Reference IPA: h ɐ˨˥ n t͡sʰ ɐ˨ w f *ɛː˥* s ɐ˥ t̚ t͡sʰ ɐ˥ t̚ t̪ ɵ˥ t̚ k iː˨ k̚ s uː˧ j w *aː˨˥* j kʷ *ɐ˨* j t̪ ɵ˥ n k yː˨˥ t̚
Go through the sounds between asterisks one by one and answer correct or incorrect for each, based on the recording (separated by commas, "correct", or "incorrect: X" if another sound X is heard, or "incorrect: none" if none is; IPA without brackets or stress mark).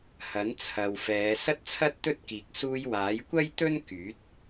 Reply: incorrect: ɛː˨˧, correct, incorrect: ɐ˥